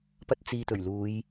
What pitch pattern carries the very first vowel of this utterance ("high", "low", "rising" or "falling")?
high